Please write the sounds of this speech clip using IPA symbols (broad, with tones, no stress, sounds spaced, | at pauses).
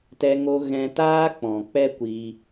t ɛ˧ ŋ o˧ ɣ ɛ̃˧ t aː˦ k͡p ɔ̃˨ k͡p ɛ˦ kʷ i˧